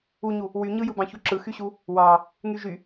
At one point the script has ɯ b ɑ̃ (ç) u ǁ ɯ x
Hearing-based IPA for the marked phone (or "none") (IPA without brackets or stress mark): ç